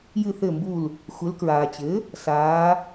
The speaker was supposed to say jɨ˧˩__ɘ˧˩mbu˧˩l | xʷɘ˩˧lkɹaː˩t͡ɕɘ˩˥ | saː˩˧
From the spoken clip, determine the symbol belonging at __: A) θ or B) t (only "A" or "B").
A